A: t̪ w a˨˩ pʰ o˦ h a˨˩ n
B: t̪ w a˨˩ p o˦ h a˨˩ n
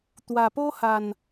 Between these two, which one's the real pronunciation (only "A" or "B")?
B